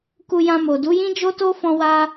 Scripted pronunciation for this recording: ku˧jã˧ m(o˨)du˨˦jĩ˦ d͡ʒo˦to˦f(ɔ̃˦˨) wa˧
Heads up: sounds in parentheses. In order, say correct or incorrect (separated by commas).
correct, incorrect